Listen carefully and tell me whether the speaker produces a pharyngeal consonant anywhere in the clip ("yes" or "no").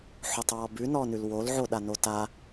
yes